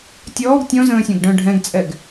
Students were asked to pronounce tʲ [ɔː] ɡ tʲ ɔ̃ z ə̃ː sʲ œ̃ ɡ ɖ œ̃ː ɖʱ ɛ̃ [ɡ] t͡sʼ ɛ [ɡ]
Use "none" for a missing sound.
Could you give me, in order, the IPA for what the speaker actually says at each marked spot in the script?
ɔː, ɡ, ɡ

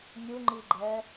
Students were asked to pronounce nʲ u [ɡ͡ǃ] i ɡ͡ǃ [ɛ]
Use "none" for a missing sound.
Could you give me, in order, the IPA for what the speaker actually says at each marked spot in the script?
ŋ͡ǃ, ɛ

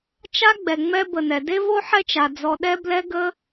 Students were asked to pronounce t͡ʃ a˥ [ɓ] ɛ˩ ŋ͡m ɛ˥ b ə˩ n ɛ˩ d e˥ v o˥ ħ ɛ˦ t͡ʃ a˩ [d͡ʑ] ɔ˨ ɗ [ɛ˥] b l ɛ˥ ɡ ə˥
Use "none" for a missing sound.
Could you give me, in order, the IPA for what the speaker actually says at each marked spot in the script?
ɡ͡b, d͡z, ɛ˥

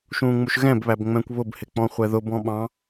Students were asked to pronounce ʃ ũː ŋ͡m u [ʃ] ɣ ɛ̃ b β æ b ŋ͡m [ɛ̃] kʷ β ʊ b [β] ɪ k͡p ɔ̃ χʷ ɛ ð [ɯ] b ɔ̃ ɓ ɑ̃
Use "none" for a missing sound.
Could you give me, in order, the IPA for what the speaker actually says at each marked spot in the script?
ʃ, ɛ̃, h, ʊ

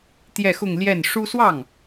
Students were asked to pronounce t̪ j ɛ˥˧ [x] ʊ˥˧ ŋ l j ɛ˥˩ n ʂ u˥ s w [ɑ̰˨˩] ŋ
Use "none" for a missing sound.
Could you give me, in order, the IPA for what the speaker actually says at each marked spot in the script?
x, ɑ˥˩

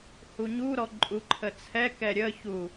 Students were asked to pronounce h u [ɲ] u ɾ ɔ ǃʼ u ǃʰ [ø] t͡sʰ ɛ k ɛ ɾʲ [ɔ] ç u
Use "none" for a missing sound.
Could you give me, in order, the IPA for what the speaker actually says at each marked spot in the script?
ɲ, ə, ə

